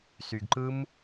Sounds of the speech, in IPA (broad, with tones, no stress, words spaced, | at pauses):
sy˧ɡǃɯ˦m